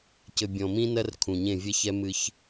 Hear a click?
no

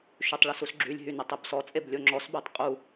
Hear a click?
yes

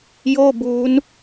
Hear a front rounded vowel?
no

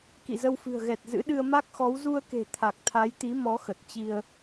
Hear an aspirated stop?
yes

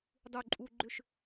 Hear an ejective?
yes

